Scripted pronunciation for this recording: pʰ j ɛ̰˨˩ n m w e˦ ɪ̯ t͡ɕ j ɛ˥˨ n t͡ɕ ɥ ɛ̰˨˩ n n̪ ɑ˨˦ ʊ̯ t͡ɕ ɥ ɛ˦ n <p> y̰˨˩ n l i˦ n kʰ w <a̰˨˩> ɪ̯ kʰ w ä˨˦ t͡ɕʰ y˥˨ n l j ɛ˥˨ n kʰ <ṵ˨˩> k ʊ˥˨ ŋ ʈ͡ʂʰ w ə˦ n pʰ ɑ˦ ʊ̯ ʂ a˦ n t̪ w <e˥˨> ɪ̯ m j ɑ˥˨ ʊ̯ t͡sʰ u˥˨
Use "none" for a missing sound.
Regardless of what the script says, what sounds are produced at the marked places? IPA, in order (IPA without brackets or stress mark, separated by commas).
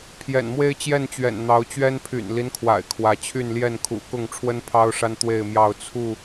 pʰ, a̰˨˩, ṵ˨˩, e˥˨